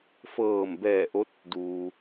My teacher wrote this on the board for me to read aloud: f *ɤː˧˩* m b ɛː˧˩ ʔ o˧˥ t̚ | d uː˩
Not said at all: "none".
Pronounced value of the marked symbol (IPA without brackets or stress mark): ɤː˧˩